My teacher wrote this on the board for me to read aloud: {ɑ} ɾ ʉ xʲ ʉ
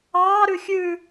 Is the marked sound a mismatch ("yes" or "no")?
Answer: yes